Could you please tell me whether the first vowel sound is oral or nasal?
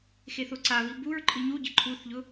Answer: oral